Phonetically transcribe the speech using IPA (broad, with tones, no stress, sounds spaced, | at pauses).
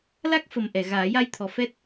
l a˦˥ k̚ f ə˨˩ m ʔ ɛ˨˩˨ ɣ aː˨˩˦ j a˧ j t̪ʰ ɔ˨˩ f ɛ˦˥ t̚